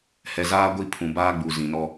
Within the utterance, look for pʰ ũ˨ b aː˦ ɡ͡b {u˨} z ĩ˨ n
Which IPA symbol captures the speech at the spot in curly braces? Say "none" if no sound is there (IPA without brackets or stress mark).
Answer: u˨